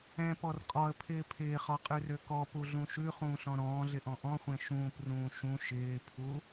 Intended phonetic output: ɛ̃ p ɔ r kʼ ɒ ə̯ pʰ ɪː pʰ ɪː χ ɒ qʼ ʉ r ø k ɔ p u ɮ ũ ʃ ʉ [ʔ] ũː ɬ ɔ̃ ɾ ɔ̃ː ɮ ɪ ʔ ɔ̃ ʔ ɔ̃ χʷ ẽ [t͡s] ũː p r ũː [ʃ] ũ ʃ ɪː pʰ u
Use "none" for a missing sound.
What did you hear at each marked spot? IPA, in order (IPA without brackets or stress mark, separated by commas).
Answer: χ, ʃ, ʃ